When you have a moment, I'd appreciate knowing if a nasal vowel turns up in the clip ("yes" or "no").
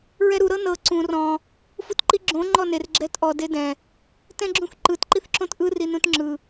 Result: yes